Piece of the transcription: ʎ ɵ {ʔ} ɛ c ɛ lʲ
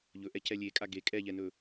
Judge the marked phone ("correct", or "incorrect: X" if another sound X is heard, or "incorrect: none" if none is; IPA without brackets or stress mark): correct